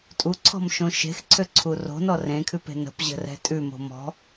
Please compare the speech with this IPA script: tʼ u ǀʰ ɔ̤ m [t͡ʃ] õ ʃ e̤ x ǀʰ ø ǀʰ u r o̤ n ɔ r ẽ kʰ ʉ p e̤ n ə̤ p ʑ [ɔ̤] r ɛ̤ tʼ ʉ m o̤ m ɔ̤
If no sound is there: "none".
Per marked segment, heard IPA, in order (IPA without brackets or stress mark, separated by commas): ʃ, ə̤